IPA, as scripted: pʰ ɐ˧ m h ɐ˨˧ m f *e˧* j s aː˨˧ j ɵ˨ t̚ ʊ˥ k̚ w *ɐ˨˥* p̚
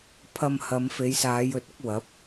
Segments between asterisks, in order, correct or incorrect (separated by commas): incorrect, correct